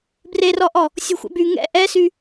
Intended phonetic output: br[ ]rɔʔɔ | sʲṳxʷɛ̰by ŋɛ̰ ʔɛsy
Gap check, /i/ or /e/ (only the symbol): e